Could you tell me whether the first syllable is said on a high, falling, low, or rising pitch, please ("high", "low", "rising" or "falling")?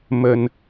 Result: low